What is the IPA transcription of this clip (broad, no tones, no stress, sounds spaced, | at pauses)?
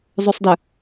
zˤ u sˤ d ə